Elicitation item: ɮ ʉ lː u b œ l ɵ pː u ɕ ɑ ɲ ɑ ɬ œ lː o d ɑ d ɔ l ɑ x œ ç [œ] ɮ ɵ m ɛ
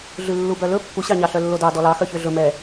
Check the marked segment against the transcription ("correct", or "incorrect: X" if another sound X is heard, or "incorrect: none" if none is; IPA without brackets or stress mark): incorrect: ø